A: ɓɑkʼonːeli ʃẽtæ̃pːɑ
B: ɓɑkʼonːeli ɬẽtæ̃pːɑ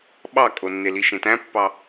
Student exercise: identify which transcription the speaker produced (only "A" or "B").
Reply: A